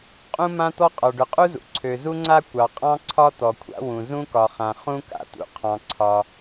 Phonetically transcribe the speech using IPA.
qʼ ũ˥ m ã˥ t̪ ɔ˥ qʼ ɒ˩ ɖ ʏ˩ qʼ u˥ z ṵ˩ ǀʰ ø˩ z u˥ ŋ͡ǀ a˥ kʷ ɑ˩ qʼ ɑ̃˥ ǀʰ ɒ˥ t̪ ɔ˩ kʷʰ a̰˥ w ũ˩ z ũ˥ k ɒ˩ χ ã˩ χ ũ˥ k a̰˩ t̪ ṵ˩ qʰ ɑ̃˩ ǀʰ ɒ˩

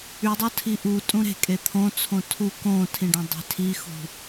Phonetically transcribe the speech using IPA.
y dˤ o tʰ i ʔ u tʼ ũ ɾ e̤ kʼ e t̪ʰ õ t͡sʰ õ tʰ u k õ tʰ ĩ ɖ ẽ dˤ e̤ tʰ i x ṳ

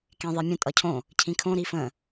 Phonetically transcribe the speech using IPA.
k ẽ ðˤ e mʲ ə̃ tʼ ʌ cʰ õ | cʰ ĩ kʰ õ ɾ i f ə̃

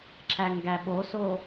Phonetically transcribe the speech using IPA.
ǁ æ ŋ ɡ æ ɓ o s o

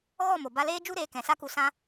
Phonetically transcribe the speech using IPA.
ɣ ɔ˦˨ m o˨ b a˧ l eː˦ d͡ʒ u˦ ɾ eː˧ k ɛ̃˨ s a˦ k u˧ s ã˧

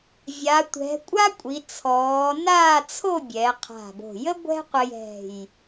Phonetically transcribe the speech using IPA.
vʲ a˩˧ tʷ ɛ̤˩˧ kʷʼ a˥ kʷʼ i˩˧ t͡sʰ ɔː˩˧ n aː˥˧ t͡sʰ o˥˧ bʲ ɛ˩˧ qʰ a̤˧˩ b o̤˧˩ j ə˥ ɡʷ ɛ̤˥ qʷ ɘ˧ j ɛ̤˧˩ j

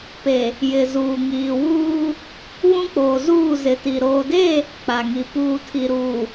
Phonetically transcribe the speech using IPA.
p e˨ | j ɪ˨ z uː˨ ŋ iː˨ w uː˦ | β ũ˦ k͡p oː˨ z uː˦˨ z ɪ˨ t i˨ ɾ oː˨ d e˦˨ | k͡p a˨ ŋ i˨ p uː˨ tʰ i˨ ɾ uː˨

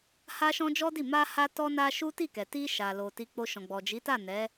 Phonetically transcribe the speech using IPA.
h a˦ ʃ ɔ̃˦ d͡ʒ ɔ˦ d i˦˨ m a˧ h a˧ t ɔ˧ n a˧ ʃ u˦ t i˦˨ k ɛ˨ t i˧ ʃ a˨ l o˨ t i˧ k͡p o˧ ʃ ɔ̃˨ ɡ͡b ɔ˨ d͡ʒ i˨˦ t a˦˨ n ɛ˨˦

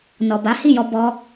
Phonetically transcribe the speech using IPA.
n ɔ˨ b a˨˦ h i˦˨ j ɔ˧ b ɔ˧

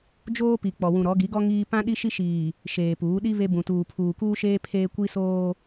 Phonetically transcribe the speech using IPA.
d͡ʒ oː˦ p i˨ k͡p ɔ˨ w ũ˨ ɾ ɔ˨˦ ɡ i˨˦ ɡ ɔ˦ ŋ iː˦ p ã˦ ɗ i˦ ʃ i˦ ʃ iː˨ | ʃ eː˨ p uː˨˦ ɗ i˦ β e˦ b ũ˨ t uː˨ pʰ uː˨ k uː˦ ʃ eː˦ pʰ eː˦ kʷ i˦ s oː˦

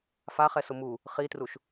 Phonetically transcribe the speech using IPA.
f a χ ɛ s ʊ m u | χ i t r u ʃ

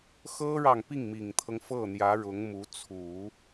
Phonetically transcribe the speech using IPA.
x ɤ˥ ɻ ɑ˨ ŋ p i˥˩ ŋ m i˨˩ ŋ t̪ʰ ɤ˦ ŋ f ɤ˥˩ n̪ j ä˧˥ ɻ ʊ˧˥ ŋ m u˧˥ t͡sʰ u˨˩˦

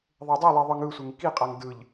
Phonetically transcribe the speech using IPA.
ðˤ e dˤ u lˠ i ðˤ ɯ ŋ ɯ sʷ e ŋ k i qʼ a ŋ d ɯ ʎ

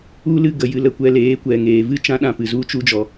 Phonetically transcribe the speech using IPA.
u˦ l ɨ˦ ɡ ə˧ j ɨ˧ l ə˧ kʷ ɛ˧ l eː˨˦ kʷ ɛ˨ ŋ eː˨ v ɨ˦ t͡ʃ ã˦ ɗ ã˦˨ p ɨ˨ z u˧ t͡ʃ u˧ d͡ʒ ɔ˨

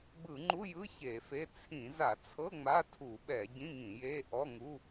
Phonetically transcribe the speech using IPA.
ɡ͡b ɯ˧˩˧ ŋ͡ǃ u˧˥˧ j ɯ˧˥˧ ç e˧˩˧ f e˧˥˧ t͡sʰ ĩ˧˩˧ z a˧˩˧ t͡sʰ ɤ˧˥˧ ŋ͡m a˧˥˧ tʰ u˧˩˧ ɓ ɛ˧˩˧ ɟ ĩ˧˥˧ ŋ ĩ˧˩˧ j e˧˥˧ ʔ ɔ˧˥˧ ŋ u˧˥˧

